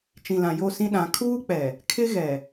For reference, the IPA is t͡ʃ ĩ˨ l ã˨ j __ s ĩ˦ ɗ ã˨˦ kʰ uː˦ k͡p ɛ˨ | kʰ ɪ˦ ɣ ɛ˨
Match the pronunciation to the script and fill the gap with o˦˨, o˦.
o˦˨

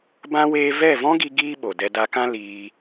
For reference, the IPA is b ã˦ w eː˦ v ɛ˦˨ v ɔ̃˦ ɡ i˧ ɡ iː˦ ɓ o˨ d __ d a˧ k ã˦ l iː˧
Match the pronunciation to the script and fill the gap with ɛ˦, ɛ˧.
ɛ˧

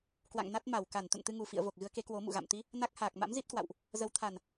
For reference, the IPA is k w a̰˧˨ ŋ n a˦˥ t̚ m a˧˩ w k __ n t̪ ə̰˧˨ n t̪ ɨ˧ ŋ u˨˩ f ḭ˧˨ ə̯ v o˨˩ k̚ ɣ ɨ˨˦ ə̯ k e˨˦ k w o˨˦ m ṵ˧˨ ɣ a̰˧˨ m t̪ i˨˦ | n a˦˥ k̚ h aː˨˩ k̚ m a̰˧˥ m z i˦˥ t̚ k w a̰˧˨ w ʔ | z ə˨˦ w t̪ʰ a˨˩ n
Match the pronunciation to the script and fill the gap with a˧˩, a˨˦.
a˧˩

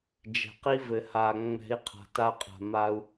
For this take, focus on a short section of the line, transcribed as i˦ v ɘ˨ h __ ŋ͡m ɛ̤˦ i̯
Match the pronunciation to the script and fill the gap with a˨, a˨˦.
a˨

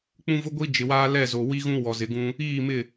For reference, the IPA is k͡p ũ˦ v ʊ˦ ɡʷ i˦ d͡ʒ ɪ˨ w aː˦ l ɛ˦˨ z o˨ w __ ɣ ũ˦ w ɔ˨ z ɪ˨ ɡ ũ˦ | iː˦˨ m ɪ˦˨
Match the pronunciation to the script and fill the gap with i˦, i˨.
i˦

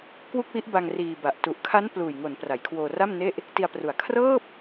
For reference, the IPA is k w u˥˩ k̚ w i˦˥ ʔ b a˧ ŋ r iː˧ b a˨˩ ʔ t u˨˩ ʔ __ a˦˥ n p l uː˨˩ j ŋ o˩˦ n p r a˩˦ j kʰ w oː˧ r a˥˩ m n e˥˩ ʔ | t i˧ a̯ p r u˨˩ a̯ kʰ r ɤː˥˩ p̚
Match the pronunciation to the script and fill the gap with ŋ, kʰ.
kʰ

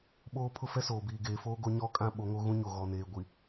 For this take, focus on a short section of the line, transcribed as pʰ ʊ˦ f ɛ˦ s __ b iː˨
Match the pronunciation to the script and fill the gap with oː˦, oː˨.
oː˨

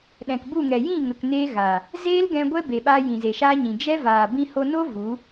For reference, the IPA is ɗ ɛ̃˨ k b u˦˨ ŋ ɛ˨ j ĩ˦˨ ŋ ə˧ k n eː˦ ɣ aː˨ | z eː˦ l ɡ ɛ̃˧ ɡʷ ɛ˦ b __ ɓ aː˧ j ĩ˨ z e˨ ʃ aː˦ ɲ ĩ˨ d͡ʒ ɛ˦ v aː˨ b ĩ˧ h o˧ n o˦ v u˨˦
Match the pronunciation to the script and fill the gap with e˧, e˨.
e˨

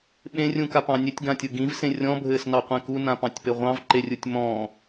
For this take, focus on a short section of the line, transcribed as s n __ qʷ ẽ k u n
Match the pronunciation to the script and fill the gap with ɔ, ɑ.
ɑ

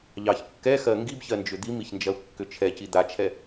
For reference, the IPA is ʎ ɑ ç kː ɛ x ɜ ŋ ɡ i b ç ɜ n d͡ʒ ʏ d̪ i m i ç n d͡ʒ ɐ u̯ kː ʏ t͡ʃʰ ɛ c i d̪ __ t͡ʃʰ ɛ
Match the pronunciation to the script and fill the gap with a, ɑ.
a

